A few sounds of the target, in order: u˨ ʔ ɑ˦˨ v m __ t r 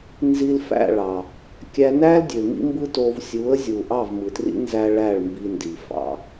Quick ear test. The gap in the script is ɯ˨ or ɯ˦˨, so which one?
ɯ˨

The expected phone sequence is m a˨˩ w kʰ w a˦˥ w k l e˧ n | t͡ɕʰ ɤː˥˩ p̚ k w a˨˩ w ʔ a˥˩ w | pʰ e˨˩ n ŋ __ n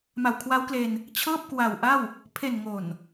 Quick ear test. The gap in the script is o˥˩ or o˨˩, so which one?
o˨˩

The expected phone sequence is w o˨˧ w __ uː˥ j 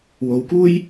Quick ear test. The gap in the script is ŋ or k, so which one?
k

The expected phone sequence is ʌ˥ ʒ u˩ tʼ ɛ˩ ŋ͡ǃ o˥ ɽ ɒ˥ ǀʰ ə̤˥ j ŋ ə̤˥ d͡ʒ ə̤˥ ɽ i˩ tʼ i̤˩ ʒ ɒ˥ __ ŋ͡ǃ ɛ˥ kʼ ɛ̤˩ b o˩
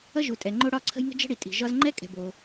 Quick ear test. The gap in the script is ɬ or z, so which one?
z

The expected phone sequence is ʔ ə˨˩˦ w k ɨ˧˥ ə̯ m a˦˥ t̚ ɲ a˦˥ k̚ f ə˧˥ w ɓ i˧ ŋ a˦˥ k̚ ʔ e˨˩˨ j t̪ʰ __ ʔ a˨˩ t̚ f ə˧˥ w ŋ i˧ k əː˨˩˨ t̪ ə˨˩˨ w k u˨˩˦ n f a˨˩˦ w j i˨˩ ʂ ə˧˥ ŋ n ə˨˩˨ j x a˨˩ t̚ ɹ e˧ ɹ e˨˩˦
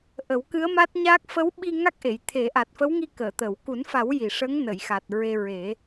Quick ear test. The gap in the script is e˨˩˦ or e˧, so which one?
e˨˩˦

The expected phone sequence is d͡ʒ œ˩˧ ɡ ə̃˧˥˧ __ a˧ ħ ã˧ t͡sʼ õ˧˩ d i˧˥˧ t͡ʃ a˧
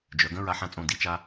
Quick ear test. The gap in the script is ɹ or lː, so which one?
ɹ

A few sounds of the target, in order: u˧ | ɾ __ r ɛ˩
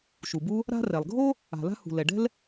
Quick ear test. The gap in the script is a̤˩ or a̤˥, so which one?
a̤˥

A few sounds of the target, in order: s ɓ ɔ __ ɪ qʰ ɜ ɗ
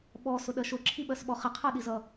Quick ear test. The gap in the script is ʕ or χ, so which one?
χ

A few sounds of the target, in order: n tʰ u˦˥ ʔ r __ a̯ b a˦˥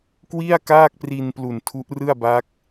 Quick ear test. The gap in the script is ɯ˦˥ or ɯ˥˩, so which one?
ɯ˥˩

